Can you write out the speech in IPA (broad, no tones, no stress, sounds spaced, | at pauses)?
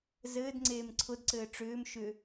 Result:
z ɘː d ŋ͡ǀ eː m ǀʰ ʊ d ǀ ɘː ʈ͡ʂ ʏː m ʃ ʏ